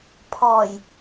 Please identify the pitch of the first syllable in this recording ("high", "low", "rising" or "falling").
low